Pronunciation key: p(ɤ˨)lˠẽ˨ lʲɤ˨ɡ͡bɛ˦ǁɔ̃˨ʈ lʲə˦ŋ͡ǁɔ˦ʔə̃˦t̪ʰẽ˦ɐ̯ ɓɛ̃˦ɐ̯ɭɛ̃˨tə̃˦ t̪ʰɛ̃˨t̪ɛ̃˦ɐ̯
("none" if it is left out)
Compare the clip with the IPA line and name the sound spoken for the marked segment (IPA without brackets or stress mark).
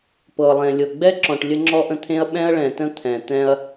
ɤ˨